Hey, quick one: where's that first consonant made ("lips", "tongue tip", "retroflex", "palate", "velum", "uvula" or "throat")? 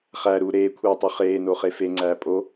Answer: uvula